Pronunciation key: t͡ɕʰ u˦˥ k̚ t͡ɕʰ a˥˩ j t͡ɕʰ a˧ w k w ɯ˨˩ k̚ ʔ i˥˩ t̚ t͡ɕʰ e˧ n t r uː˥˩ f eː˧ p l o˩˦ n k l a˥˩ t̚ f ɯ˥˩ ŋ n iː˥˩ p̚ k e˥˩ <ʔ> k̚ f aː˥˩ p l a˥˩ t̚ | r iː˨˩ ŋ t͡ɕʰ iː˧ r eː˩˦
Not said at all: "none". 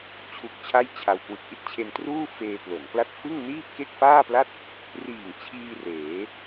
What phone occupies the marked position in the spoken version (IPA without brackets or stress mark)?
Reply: none